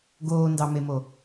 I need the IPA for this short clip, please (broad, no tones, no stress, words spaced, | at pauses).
ɡoːndɑmemo